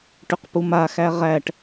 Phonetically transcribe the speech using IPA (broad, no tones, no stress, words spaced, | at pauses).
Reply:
ʈʏqpumaxæ ʁæʈ